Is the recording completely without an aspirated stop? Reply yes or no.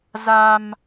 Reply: yes